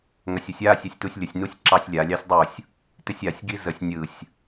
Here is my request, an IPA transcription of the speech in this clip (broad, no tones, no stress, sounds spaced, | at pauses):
ŋ ɐ sʲ ə sʲ a sʲ ɛ sʲ t u sʲ lʲ ə sʲ n u sʲ ǁ ɑ sʲ lʲ a lʲ ɑ sʲ dˤ u sʲ | t ɪ sʲ a sʲ ɡ i z ə sʲ nʲ ɯ sʲ